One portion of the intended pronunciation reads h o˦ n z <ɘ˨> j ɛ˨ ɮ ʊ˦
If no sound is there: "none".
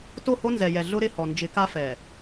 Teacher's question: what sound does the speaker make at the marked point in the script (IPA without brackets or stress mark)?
ɛ˨